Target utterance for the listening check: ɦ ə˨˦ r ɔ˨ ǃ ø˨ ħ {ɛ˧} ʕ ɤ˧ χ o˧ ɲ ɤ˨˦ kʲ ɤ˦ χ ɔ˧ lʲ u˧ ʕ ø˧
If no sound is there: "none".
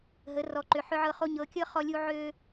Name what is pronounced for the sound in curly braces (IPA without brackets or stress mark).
ʏ˧